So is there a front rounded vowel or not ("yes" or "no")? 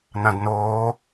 no